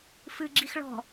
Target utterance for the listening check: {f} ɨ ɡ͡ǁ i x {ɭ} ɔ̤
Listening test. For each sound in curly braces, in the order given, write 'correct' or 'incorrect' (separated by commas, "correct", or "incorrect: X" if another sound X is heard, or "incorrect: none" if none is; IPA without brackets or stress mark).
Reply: correct, correct